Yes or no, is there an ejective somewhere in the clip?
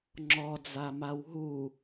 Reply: no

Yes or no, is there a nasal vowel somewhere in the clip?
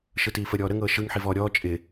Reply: no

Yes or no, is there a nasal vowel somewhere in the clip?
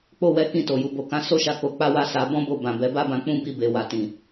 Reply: yes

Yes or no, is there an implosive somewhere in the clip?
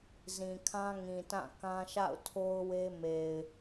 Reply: no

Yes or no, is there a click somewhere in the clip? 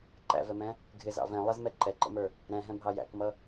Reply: yes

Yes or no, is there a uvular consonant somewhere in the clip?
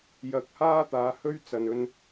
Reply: no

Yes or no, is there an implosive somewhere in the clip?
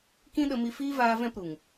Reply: yes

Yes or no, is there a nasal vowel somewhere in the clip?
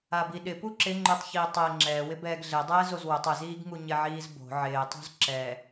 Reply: no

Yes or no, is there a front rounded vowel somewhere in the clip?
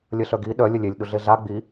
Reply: yes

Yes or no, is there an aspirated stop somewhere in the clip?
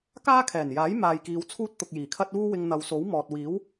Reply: yes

